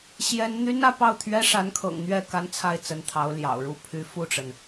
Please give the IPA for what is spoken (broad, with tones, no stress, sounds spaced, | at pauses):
ɕ j ɛ˥ n n̪ y˥ n ä˥˧ p ɑ˥˩ ʊ̯ t̪ʰ ɥ ɛ˥ ʂ a˧˥ n kʰ ɤ̰˨˩ ŋ n̪ ɥ ɛ˥˩ k a˥ n t͡sʰ a˥˩ ɪ̯ t͡s ə˧˥ n t̪ʰ ɑ˧˥ ʊ̯ l j ɑ̰˨˩ ʊ̯ ɻ u˥˩ pʰ y˧˥ f u˥˩ ʈ͡ʂ ə˩ n